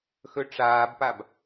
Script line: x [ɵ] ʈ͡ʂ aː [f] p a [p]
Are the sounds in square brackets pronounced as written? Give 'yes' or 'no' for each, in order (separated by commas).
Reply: yes, no, no